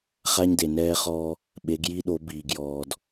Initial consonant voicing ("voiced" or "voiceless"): voiceless